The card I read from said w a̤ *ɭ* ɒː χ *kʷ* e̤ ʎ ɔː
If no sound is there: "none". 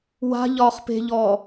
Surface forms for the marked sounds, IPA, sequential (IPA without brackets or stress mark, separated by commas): ʎ, p